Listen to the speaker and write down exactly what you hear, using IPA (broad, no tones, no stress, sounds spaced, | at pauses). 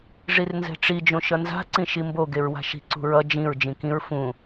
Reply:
ʐ i r n z ɛ̤ ʈ͡ʂ i d͡ʒ õ ʃ ʌ n z a̤ ǀ ĩ ʃ i m b o ɡ e ɹ w a̤ ʃ i̤ ǀ ṳ ɹ ʌ d͡ʒ ĩ ɹ d͡ʒ ĩ k ĩ ɹ f ũ